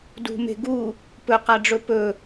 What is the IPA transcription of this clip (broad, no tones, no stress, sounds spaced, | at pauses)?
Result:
d ṳ m e̤ ɡ u | p ɵ q a ɖ͡ʐ ɵ p ɵ